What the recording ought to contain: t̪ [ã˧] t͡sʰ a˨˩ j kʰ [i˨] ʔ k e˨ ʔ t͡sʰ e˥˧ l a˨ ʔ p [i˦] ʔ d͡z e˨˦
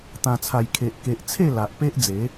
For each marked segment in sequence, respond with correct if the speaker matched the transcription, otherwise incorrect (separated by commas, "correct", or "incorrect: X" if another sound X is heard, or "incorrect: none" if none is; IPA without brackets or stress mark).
incorrect: ã˨˩, incorrect: e˨, incorrect: e˦